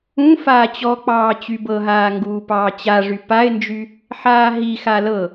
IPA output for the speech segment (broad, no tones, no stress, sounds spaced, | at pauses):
ũ f aː t͡ɕ ɔ k͡p ɑː t͡ɕ y b ɤ ɦ aː ŋ ɡ uː p ɑː t͡ɕ a ʐ y p a ɪ̯ n d͡ʒ y | ħ aː ɦ i x a l ɤ